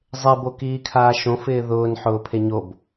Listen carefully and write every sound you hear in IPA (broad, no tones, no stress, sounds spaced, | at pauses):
zˤ e b o k iː kʰ aː ʃ õ f ɪː ð ʊː n ħ ʊː pʰ e ɲ o b